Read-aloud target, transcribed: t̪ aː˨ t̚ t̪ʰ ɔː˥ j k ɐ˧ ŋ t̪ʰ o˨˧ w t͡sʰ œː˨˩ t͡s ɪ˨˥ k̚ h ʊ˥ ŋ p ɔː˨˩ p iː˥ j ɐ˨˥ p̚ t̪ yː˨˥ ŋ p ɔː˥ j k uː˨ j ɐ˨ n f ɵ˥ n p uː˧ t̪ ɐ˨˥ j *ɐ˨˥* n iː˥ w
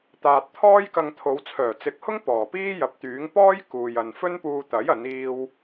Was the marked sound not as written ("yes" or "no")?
no